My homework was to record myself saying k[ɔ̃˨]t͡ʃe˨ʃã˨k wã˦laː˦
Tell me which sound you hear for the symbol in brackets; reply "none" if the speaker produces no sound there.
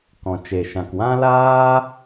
ɔ̃˨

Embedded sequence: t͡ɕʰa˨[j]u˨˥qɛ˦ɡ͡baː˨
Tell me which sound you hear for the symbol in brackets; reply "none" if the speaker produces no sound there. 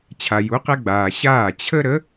j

